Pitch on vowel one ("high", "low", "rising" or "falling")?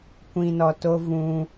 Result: low